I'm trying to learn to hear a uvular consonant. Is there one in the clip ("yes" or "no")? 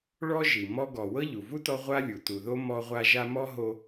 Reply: yes